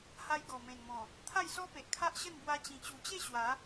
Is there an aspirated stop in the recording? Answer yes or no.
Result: yes